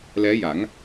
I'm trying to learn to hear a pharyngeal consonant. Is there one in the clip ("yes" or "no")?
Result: no